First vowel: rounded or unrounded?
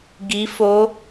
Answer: unrounded